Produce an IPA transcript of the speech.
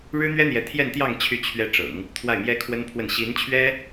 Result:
ɻɻ̩˥n̪ɥɛ˥n̪jɛ˧˥ t̪ʰjɛ˥˧nt̪jɑ˥˧ŋ t͡ɕʰy˥˩ t͡ɕʰɥɛ˧˥ ʈ͡ʂɤ̰˨˩˦ŋ | t̪ʰwa˥˩ɪ̯mjɛ˥ kʰwə˥npʰwə˥˩n ɕi˧˥nt͡ɕʰɥɛ˥

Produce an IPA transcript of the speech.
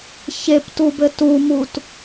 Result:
çeptubɘ tumut

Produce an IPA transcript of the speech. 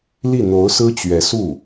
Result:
li˥˩ n̪o˧˥ʊ̯sɹ̩˥t͡ɕɥɛ˧˥su˥˩

